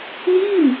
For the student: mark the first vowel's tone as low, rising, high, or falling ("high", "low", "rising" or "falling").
falling